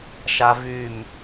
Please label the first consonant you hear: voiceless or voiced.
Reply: voiceless